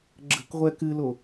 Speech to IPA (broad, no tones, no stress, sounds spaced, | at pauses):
ɡ͡ǁ ə̤ k ʁʷ ɛ k ɨ l o